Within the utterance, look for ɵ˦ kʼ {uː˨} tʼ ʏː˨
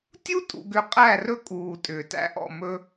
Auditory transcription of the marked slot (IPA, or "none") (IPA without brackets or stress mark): uː˨